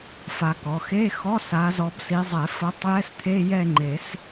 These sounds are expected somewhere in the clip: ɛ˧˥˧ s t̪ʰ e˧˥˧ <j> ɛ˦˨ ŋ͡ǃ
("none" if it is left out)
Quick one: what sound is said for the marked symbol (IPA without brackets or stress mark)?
j